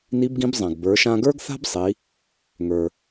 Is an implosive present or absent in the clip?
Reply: absent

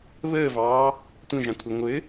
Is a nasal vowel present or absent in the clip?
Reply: present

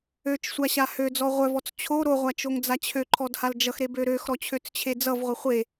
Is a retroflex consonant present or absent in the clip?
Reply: absent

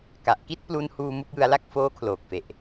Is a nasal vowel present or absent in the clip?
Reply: absent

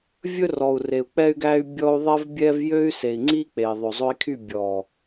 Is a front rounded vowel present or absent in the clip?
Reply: present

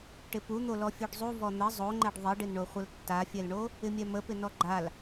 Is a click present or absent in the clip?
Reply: present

